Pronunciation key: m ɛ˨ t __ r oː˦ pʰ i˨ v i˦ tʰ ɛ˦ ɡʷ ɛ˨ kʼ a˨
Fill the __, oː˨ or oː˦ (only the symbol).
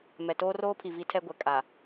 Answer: oː˦